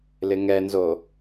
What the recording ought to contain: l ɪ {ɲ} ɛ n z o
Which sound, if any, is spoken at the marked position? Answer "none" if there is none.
ŋ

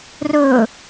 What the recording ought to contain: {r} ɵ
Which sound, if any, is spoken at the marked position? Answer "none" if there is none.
r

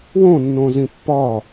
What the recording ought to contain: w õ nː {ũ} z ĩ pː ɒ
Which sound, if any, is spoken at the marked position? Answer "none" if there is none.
õ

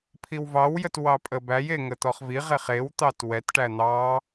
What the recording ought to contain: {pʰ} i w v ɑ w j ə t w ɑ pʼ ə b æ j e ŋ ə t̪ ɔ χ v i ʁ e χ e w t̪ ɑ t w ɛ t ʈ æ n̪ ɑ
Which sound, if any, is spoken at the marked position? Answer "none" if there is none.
pʰ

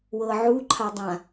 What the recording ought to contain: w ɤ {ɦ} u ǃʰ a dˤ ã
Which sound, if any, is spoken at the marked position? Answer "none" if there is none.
ʕ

